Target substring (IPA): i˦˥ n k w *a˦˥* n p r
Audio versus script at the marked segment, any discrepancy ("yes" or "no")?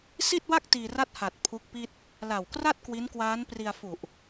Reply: yes